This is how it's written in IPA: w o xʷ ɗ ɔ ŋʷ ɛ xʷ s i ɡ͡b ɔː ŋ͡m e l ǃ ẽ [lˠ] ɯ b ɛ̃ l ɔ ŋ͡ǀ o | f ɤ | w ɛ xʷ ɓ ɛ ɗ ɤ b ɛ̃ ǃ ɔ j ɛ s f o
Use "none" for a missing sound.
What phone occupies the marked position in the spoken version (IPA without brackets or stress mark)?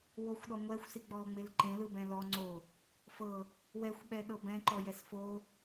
l